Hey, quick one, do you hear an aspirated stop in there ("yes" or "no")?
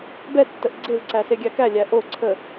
yes